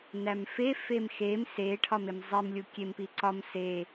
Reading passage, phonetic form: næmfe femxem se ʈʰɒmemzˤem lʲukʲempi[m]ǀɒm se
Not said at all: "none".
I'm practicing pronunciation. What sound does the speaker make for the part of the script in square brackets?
none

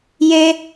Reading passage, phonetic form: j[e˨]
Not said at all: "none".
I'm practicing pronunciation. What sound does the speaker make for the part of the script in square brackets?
e˦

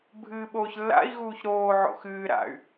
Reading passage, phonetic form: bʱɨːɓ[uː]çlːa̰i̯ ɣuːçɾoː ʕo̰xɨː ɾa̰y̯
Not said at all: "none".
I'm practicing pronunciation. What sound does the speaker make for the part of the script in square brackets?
oː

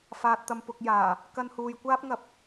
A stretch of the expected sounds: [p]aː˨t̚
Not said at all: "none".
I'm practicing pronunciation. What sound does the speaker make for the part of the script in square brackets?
f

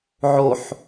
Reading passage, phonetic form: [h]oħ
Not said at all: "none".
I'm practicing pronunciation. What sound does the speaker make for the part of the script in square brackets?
ʕ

